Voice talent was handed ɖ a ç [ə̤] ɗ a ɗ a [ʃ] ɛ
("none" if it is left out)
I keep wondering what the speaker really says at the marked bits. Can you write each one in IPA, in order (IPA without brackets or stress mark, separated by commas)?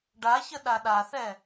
ə, θ